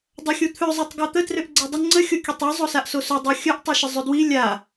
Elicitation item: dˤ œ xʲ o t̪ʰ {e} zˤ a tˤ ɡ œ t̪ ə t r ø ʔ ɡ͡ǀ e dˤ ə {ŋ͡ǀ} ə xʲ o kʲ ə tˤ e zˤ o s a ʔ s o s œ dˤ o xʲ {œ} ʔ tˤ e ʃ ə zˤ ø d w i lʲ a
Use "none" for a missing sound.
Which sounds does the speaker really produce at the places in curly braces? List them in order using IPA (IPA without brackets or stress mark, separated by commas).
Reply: ø, ŋ͡ǀ, œ